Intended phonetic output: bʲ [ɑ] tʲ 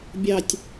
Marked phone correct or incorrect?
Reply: correct